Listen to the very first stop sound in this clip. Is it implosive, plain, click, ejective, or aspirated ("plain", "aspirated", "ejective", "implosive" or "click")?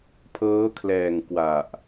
aspirated